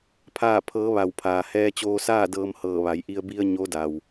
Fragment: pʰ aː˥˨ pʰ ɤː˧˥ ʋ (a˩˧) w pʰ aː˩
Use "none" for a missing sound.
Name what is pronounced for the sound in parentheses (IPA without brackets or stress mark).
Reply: a˧˩